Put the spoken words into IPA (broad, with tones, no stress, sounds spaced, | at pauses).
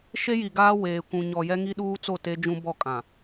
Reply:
ʃ e˦ j i˨ ɡ aː˦ w eː˨ kʷ ũ˨ ɲ ɔ˨ j ɛ˦ ŋ i˦ ɗ uː˦ t͡s o˦˨ t e˦ d͡ʒ ũ˦ b ɔ˦˨ kʼ ã˨